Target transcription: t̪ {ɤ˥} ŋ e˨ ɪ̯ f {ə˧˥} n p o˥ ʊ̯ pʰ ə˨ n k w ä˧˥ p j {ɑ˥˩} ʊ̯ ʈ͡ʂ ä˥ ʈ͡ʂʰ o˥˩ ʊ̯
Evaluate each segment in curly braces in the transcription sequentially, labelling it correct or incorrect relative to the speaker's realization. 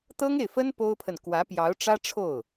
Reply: correct, incorrect: ə˥, incorrect: ɑ˧˥

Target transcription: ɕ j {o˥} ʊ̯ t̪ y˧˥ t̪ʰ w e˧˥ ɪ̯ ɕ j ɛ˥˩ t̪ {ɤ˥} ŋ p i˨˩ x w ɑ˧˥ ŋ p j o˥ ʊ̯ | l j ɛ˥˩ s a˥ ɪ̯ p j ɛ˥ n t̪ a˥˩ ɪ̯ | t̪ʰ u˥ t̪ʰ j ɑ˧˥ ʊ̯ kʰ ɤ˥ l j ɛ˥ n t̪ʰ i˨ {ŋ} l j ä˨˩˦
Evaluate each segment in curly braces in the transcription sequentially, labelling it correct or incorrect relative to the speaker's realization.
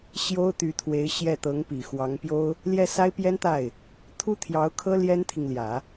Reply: correct, incorrect: ɤ˧˥, correct

